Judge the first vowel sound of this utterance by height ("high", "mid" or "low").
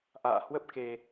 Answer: low